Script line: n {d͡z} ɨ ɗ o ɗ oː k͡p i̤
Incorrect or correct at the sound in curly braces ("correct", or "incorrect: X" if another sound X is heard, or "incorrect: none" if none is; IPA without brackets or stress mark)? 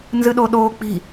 incorrect: z